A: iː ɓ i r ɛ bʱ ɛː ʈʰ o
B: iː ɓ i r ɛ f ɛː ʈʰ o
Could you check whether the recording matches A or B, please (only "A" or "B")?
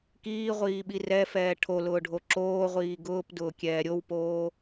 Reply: B